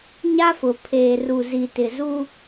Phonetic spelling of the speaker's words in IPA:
ɲ a˦ f ʊ˨ pʰ eː˨ r u˨ z i˨ t ɪ˨ z u˦

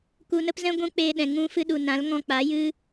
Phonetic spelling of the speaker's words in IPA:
k u˧ n ə˦ p z ɛ̃˦ ɡʷ ũ˦ k͡p e˧ ɗ ɛ̃˨ ŋ ũ˧ f ɨ˧ ɗ u˨ n ã˨˦ l ŋ ɔ̃˧ k͡p a˨˦ j ɨ˦

